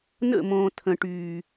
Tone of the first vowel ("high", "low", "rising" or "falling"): falling